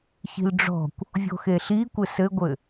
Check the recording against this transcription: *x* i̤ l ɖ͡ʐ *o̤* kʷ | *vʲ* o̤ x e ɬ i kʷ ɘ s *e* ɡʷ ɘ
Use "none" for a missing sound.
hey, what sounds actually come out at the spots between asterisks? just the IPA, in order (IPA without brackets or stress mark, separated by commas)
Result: ç, ɔ̤, vʲ, ɘ